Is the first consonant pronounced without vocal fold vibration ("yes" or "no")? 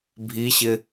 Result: no